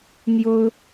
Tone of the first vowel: high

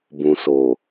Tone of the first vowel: low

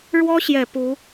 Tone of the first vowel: high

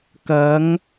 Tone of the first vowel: rising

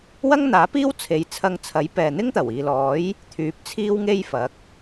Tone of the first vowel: high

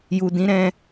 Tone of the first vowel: low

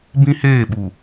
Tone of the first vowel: high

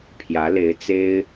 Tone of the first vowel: rising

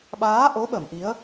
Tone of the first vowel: rising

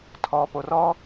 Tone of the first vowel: low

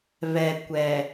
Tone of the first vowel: low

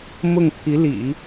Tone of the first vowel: falling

